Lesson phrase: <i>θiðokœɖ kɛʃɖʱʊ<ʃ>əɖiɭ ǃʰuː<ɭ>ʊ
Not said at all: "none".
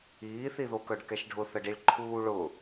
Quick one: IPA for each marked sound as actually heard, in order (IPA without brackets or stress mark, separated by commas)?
iː, θ, ɭ